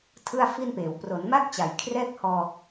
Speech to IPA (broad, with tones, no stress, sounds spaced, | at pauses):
tʰ ɯ˥˩ a̯ f i˥˩ n p eː˩˦ w p r o˩˦ n m a˥˩ k̚ t͡ɕ a˩˦ j kʰ r ɛː˥˩ k̚ h ɔː˧